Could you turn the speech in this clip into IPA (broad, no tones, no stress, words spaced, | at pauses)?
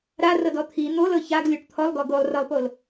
ɾarɤdɔ t̪ʰi n̪olɤ çaɡlʲoʈ t̪ʰɔlˠɡɔ ɡolˠrɤlˠpol